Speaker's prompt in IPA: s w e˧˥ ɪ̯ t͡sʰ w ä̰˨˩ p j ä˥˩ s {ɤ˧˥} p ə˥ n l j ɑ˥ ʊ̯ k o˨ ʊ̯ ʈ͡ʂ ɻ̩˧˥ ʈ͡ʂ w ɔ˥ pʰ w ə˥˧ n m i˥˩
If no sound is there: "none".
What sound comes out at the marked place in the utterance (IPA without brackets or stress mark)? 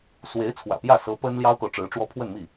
ɤ˧˥